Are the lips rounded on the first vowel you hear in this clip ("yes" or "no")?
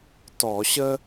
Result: yes